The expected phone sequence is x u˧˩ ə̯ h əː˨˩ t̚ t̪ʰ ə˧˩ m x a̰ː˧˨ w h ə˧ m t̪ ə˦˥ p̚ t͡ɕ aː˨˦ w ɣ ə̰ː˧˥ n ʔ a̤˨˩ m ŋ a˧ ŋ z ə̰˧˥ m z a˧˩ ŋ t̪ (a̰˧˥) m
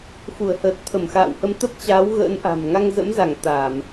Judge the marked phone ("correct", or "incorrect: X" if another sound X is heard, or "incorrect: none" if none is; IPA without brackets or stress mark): incorrect: a˧˩˨